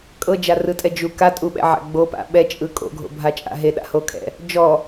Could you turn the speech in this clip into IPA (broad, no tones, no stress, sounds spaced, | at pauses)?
kʼ ɤ d͡ʒ a r ɯ tʼ ɛ d͡ʒ u k a tʼ u ɓ ɛ̰ ʕ a̰ ɡ͡b o p a̰ ɓ ɛ t͡ʃʼ ɯ kʼ o̰ ɡʱ o̰ bʱ a t͡ʃʼ a̰ ɦ e ɗ a̰ h o kʰ ɛ̰ | d͡ʒ ɔ